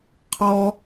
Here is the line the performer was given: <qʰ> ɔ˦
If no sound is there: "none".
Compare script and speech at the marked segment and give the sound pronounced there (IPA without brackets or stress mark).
qʰ